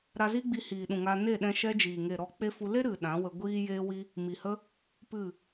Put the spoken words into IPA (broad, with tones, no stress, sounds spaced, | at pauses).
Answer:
ɾ a˧ z i˦ ɡ͡b i˧ h iː˨ ɗ ũ˨ ŋ a˧ n e˦˨ ɗ ɛ̃˧ ʃ ɛ˦ d͡ʒ iː˨ ŋ e˨ ɾ ɔ˧ k͡p e˦ f u˧ l e˦ ɾ ɨ˨ ɗ ã˨˦ w ə˧ ɡʷ iː˧ j eː˧ w i˧ | m i˨ h ə˦ | p ɨ˦˨